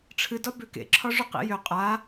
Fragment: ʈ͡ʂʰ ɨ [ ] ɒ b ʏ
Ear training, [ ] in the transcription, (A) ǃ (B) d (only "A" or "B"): B